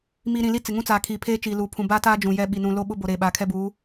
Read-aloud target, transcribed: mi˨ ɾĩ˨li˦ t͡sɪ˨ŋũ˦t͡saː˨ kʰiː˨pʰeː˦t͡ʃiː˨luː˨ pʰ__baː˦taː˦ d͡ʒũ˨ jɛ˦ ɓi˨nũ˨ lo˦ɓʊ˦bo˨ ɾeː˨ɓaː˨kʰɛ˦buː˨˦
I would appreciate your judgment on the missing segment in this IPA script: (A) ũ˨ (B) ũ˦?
A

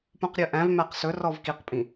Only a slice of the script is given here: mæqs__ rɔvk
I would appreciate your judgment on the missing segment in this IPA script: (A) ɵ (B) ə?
A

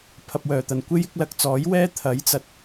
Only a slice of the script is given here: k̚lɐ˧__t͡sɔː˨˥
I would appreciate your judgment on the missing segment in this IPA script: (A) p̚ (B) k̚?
B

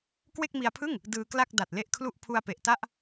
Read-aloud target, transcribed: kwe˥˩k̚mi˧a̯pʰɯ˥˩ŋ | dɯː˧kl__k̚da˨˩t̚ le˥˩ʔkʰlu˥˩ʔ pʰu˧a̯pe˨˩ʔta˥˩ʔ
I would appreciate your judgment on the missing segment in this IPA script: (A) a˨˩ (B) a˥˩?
B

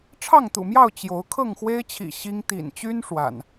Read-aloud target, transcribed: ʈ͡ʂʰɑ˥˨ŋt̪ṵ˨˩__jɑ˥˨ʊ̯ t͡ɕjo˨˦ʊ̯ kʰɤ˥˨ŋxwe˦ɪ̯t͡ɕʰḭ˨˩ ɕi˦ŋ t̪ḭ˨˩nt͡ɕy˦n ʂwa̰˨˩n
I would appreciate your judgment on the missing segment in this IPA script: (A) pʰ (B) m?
B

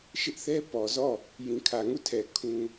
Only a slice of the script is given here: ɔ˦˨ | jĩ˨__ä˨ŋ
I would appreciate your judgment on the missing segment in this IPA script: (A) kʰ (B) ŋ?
A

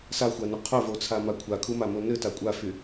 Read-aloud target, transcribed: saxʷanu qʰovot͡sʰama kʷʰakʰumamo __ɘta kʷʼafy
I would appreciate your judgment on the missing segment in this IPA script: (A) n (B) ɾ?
A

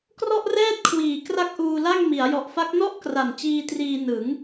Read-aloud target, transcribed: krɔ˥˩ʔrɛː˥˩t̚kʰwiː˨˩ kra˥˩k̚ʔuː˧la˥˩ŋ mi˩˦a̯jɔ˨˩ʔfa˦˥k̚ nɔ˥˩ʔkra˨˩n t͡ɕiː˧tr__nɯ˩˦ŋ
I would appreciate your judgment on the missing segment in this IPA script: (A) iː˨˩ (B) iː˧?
B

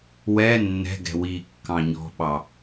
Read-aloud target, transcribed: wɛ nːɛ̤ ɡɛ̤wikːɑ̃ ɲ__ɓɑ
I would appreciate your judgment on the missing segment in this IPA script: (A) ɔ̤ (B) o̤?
A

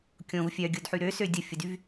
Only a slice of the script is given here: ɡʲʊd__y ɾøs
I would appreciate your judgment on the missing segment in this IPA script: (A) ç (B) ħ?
B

